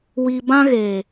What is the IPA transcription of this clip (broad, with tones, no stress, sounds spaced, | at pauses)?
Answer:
w i˨ b ã˦ ɣ e˨